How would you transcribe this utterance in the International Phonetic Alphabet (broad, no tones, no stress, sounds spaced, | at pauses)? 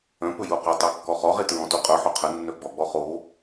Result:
œ̃ p ɵ j u q u tˤ e kː ɔ χ ɔ ʁ e t ɹ ɔ̃ t u qʼ œ ħ o qʰ ə nː œ ɡ͡b ɔ ɡ͡b ɔ χ o